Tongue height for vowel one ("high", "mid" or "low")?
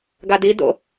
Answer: low